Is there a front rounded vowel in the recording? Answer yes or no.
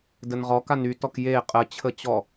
yes